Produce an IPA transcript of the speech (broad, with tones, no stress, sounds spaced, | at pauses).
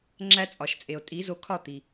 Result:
ŋ͡ǁ æ˦ t͡sʼ ɒ˨ ʃ t͡sʼ e˨ o̯ tʼ i˨˦ z o˧ kʰ ɒ˦˨ t̪ i˨